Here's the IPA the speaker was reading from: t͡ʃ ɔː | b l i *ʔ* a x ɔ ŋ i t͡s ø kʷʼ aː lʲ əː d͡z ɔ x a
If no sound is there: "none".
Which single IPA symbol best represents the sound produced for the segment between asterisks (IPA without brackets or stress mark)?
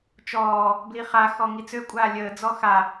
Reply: χ